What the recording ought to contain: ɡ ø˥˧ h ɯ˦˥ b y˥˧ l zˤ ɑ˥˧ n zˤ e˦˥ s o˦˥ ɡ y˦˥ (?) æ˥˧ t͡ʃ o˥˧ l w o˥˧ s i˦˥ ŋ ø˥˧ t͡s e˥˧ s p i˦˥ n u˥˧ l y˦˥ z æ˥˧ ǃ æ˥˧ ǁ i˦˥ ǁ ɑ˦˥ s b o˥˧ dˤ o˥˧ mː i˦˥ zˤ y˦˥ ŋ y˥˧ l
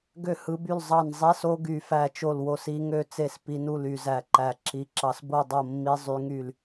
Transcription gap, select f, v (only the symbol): f